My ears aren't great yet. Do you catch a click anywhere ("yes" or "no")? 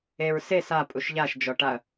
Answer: no